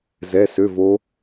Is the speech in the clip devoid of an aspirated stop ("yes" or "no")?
yes